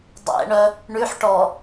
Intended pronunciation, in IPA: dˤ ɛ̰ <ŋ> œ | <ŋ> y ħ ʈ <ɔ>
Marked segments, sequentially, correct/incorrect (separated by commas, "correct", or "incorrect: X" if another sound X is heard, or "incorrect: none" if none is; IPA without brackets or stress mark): incorrect: ɳ, incorrect: ɳ, correct